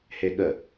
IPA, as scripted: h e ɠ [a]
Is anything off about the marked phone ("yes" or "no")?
yes